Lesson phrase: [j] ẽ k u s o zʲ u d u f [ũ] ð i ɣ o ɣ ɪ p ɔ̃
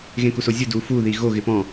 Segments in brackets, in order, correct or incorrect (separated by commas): incorrect, incorrect